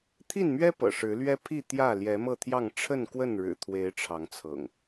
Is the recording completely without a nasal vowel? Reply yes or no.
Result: yes